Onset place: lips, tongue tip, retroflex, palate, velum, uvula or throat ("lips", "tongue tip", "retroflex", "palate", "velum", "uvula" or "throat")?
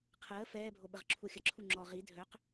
uvula